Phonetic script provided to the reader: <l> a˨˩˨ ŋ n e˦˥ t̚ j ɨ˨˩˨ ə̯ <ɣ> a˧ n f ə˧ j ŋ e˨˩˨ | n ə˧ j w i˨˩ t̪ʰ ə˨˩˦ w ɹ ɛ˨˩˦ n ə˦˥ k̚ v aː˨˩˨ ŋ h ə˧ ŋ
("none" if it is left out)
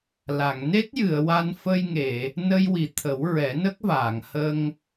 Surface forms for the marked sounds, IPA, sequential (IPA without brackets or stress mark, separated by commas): l, w